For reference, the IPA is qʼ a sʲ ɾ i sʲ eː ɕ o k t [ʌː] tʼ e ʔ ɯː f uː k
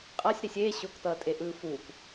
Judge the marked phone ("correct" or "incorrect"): correct